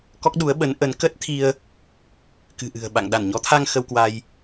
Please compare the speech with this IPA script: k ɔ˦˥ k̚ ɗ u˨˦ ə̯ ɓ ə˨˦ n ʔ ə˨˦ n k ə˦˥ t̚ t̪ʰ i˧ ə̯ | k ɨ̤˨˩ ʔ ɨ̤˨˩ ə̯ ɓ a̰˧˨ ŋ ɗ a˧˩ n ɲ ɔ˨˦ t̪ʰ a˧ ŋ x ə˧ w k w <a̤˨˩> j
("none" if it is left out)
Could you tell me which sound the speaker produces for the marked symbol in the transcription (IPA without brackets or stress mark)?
a˧